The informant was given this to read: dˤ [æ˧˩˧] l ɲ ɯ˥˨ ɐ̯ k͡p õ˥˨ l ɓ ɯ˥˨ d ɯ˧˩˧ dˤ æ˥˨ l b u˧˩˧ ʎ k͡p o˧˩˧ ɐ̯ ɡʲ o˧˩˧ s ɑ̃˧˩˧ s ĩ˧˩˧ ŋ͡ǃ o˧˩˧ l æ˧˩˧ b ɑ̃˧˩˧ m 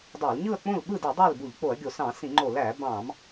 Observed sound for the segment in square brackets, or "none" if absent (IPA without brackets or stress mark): æ˧˩˧